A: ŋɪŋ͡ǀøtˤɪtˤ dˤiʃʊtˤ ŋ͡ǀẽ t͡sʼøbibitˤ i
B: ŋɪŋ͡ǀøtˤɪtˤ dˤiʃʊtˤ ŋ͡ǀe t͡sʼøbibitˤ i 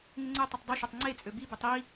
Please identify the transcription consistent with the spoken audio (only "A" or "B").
B